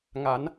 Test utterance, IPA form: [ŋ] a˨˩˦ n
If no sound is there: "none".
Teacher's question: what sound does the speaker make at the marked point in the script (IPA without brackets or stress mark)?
ŋ